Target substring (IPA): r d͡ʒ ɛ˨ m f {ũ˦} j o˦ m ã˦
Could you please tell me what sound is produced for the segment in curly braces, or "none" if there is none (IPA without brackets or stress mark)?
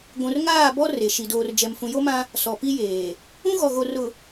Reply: ũ˨